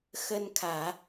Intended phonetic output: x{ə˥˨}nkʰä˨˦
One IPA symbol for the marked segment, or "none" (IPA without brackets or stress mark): ə˦